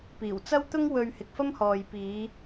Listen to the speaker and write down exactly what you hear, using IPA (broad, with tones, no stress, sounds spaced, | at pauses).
p iː˨˩ w t͡s ɐ˥ w t̪ ʊ˥ ŋ w ɵ˧ ɥ h ɪ˨ k̚ f ɐ˥ m h ɔː˨ j p iː˨˧